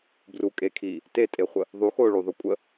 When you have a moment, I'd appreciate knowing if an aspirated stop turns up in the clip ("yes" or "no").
yes